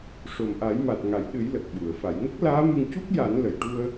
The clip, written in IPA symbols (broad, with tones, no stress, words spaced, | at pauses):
ʂo˨˩mʔa˨˩˦j ma˨˩t̚ŋa˨˩˨j ɗɨ˨˩˦j lə˨˩k̚ɓu˨˩˨ə̯ fa˨˩˨jŋə˦˥k̚ laː˧˥mɨ˧ŋ cu˦˥k̚ja˨˩˦nlə˨˩˨j ʈu˧ə̯